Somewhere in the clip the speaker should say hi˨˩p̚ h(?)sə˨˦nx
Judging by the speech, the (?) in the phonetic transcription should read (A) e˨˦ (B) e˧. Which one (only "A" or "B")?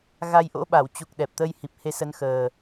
A